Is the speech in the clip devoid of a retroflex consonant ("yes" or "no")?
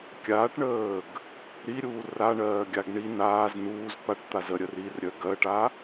no